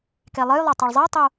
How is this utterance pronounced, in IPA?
k e lˠ ɨ j lˠ o tˤ e ɭ zˤ e j tˤ o

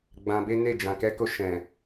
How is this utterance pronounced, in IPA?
ɡ͡b ã˧ b e˦ n e˦˨ d͡ʒ ã˨ k ɛ˧ k o˧ ʃ ɛ̃˨

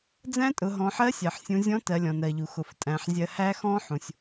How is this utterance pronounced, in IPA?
d͡z æ̃˥ tʼ ʊ˩˧ ɦ ɔ̃˩˧ ħ ɜ˧˥ sʲ ɜ˩ ħ sʲ ũ˩˧ zʲ ɔ̃˧˥ t ɜ˩˧ lʲ ɔ̃˩ n ɜ˩ ʎ u˩ x ʊ˩ f tʼ æ̃˩˧ ħ zʲ ɜ˧ h æ˥ x ɔ̃˥ ħ ũ˩ sʲ

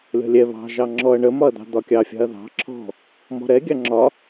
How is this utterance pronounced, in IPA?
lʲ ɔ̤ lʲ ɛ β ɑ̤ ʒ ɑ ŋ͡ǁ ɔ ɐ̯ ɳ ə m ɒ ɐ̯ d̪ ɑ̤ d̪ ɒ kʲ ɑ fʲ ɑ̤ ɐ̯ ð ɑ̤ ǁʰ ɔ̤ | m ɔ̤ ɾ ɛ ɡʲ ɑ ŋ͡ǁ ɒ

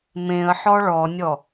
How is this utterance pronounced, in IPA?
m ẽ ə̯ ħ ɔ ɭ ɔ nʲ ɔ

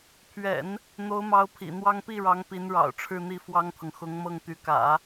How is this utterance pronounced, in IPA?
pʰ ɥ ɛ̰˨˩˦ n | n̪ o˧˥ ʊ̯ m ɑ˧˥ ʊ̯ pʰ ḭ˨˩ n̪ w ɑ˥ ŋ p i˥˩ ɻ ɑ˧˥ ŋ p i˧˥ n ɻ ɑ̰˨˩ ʊ̯ ʈ͡ʂʰ ɻ̩˥˧ n̪ i˥˩ f w ɑ˥ ŋ t̪ʰ ɤ˨ ŋ x ʊ˧˥ ŋ m ɤ˥˩ ŋ t̪ y˧˥ k ä̰˨˩˦

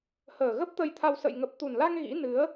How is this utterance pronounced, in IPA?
h əː˨˩ ɣ ə˦˥ p̚ t̪ ə˧ j t̪ʰ a˧ w s ə̰˧˨ j ŋ ə˨˩ p̚ t̪ u˨˩ n l a˧ ŋ ɣ ḭ˧˥ n ɨ˨˦ ə̯

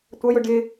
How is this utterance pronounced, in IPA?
tʷ ʌ j ʊ ɖ ɪ

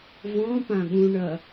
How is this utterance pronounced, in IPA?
v ɔ̃ p ã ɠ ũ ɳ ɐ

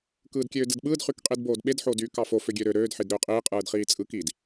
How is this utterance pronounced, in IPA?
k ɯː d kʲ øː d ɯ d ɓ ɯː d χ y k qʼ i d b oː d ɓ e d ħ oː d yː k ɑ f o f ø ɡʲ ø ɾ ø ɾ øː d ħ i d ɾ øː qʼ iː qʼ ɯː d χ iː t͡sʼ ɯ k i d

